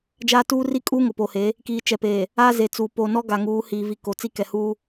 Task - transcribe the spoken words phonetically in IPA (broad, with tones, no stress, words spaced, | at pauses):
d͡ʒaː˦ tuː˦ri˦ kʼuː˦ŋʊ˨poː˨he˨˦ | kiː˨t͡ʃɛ˨peː˨ | a˦ze˨t͡suː˨ poː˨nɔ˦ ɡa˨ŋuː˨˦hiː˨vi˨ ko˨ t͡si˦kɛ˨ huː˦